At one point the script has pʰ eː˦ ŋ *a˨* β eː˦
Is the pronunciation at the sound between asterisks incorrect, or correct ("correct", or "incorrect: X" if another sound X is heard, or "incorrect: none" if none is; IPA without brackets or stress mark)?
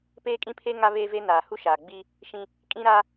incorrect: a˦